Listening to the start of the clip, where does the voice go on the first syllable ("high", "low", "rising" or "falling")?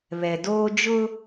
low